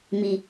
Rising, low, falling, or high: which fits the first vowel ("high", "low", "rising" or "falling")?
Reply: high